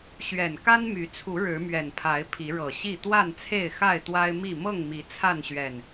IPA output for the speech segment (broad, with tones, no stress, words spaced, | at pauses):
ɕɥɛ˨˩n ka˦nmy˨˦t͡sʰu˨˦ ɻɻ̩˨˦mɥɛ˨˩npʰa˨˦ɪ̯ pʰi˨˦ɻɤ˨˩ɕi˥˨ t̪wa˥˨nt͡sʰe˥˨ɪ̯ xa˥˨ɪ̯t̪wa˦ɪ̯mi˥˨ mɤ˥˨ŋmi˨˦ t͡sʰa˥˨nɕɥɛ˨˩n